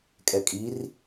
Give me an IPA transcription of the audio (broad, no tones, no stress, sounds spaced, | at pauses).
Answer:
kʼ ɛ kʼ i r